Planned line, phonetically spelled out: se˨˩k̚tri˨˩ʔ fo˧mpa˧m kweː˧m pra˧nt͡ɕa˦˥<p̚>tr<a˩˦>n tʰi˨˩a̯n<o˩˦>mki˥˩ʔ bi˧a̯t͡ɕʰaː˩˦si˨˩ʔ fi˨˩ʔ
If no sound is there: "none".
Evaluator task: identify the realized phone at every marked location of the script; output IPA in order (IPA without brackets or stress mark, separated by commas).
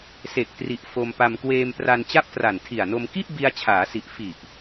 p̚, a˨˩, o˧